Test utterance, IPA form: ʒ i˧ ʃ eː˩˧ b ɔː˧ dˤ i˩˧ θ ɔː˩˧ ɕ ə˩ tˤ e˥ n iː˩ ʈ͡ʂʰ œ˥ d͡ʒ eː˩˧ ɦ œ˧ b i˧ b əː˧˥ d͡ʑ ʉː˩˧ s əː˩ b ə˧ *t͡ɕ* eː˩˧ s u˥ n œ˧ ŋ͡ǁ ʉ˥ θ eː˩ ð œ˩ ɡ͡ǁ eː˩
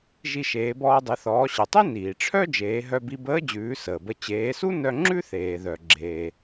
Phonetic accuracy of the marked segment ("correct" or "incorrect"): correct